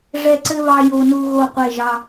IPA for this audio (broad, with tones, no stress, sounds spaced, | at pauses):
ʐ ɛ˦˨ ǀ ɘ˦ β ɑ˦ j o˦ n u˦ ɣ o˦˨ qʷ e˦˨ ʒ ɑ˦